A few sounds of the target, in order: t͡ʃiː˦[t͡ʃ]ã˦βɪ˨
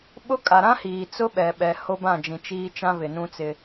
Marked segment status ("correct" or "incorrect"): correct